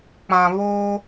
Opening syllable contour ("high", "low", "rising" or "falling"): low